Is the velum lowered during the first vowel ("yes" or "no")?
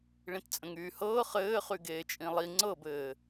yes